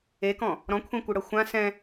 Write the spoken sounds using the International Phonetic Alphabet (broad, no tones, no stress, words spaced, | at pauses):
ekɔ̃ | ɾɔ̃kʷʰẽkʷɯɽɤ xʷã sɛ̃